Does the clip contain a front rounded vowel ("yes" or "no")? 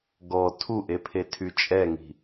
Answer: yes